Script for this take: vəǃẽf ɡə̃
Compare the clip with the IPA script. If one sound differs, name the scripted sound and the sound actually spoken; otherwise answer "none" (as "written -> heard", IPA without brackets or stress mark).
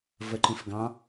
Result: ə̃ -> ɑ̃